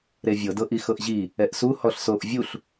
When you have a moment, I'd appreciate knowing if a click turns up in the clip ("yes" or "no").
no